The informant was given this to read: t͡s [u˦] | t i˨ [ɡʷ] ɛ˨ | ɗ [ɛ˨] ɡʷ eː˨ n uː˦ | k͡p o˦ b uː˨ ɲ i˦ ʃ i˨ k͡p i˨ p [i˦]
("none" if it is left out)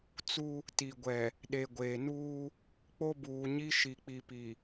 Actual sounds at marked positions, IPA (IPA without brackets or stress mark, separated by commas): u˦, ɡʷ, e˨, i˨